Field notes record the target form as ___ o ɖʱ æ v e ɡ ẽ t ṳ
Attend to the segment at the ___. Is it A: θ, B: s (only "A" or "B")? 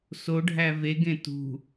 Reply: B